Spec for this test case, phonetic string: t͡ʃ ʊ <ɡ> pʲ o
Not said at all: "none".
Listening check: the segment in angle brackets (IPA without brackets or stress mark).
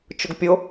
ɡ